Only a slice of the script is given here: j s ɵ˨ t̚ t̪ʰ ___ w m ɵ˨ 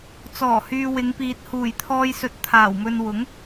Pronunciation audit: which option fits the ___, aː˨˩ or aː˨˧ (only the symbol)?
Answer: aː˨˩